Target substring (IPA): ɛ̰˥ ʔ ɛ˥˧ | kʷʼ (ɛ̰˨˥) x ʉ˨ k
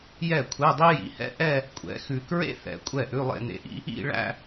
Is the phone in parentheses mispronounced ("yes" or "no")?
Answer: no